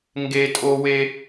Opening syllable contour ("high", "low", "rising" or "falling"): high